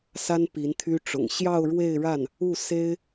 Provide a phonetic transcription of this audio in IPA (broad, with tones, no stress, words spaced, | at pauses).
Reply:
sa˥n pi˧˥nt̪ʰy˥ʈ͡ʂʊ̰˨˩ŋ ɕjɑ˥˧ʊ̯ɻwe˥˧ɪ̯ɻa˥˩n | u˥˩ se˥ɪ̯